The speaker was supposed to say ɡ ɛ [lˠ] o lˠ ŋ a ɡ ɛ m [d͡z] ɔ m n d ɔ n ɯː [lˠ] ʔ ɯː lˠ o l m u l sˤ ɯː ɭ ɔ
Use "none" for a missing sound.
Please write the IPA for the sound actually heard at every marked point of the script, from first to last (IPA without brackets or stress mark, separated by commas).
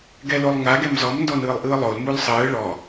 l, z, lˠ